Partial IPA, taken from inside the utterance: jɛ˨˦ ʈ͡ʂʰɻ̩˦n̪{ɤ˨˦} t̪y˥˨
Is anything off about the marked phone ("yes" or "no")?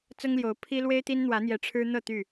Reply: yes